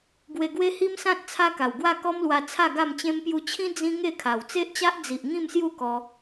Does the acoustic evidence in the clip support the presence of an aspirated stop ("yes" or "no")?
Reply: yes